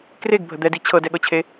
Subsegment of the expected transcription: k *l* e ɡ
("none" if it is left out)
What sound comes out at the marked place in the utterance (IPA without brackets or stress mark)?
r